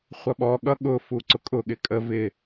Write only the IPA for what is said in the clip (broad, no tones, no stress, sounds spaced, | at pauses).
χʷ ʌ ɓ ɔ ɠ ʌ ɠ ʊ f u ǀ ʊ kʼ ʊ ɠ ɪ kʼ ə v ɪ